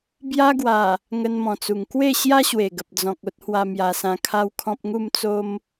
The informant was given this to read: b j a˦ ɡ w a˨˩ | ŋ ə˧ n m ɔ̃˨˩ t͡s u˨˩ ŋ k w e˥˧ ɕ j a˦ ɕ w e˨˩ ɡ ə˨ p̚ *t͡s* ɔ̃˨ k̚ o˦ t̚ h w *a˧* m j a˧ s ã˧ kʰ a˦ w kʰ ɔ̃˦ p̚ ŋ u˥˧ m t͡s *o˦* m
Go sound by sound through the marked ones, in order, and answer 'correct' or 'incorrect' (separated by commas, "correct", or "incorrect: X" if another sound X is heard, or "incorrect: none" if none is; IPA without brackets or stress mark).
incorrect: d͡z, correct, correct